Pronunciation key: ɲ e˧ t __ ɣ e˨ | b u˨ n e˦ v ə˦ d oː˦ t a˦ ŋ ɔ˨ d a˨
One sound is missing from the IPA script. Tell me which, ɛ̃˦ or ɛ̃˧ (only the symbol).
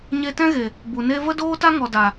ɛ̃˦